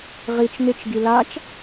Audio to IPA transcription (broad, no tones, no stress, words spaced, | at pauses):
ʁit͡ʃ nɪt͡ʃ ɡilat͡ʃ